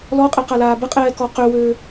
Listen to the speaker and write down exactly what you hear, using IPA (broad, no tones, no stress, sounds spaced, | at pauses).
l ɔ qʼ ɛ q a l aː b ə qʼ ɛː k ɔ q ø w øː